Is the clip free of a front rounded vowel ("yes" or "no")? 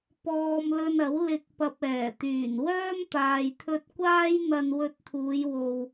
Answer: no